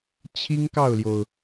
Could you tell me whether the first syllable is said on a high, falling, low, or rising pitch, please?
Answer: high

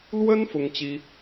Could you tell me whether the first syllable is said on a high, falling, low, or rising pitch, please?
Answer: high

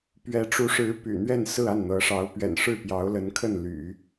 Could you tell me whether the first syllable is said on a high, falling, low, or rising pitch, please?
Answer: rising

